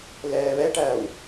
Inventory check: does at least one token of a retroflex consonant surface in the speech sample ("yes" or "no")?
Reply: yes